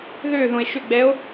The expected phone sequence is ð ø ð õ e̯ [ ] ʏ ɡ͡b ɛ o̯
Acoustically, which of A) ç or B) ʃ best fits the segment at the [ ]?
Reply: B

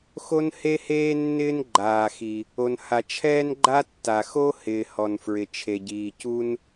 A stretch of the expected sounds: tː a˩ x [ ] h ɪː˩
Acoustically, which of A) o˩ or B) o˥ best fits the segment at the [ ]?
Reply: B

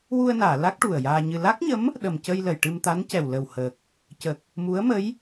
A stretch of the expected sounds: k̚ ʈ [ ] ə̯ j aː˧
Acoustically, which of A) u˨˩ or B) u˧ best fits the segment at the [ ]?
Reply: A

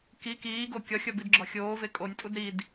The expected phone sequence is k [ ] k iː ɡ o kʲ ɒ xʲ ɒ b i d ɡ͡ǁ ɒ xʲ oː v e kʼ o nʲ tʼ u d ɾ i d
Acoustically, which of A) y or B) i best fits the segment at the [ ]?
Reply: B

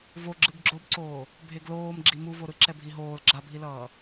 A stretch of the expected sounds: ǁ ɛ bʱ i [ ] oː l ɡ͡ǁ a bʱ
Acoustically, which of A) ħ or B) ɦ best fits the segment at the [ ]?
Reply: B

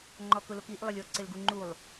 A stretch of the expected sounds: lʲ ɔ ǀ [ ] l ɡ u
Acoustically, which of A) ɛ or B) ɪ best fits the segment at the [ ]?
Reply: B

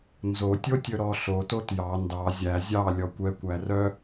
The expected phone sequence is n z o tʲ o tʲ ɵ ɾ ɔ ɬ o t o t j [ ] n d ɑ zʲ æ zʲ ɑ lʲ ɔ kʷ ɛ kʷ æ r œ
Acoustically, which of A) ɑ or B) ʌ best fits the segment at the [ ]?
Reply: A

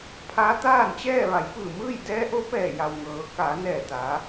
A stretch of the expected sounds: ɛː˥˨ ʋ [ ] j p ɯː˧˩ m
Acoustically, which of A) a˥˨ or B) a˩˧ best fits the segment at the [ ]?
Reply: B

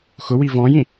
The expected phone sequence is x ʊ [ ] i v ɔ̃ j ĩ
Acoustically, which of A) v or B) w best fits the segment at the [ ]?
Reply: B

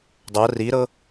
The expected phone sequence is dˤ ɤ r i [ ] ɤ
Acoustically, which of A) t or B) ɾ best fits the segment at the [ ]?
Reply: B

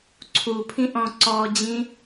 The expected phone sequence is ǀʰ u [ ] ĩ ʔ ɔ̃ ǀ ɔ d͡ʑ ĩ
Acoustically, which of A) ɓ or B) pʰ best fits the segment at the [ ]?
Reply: B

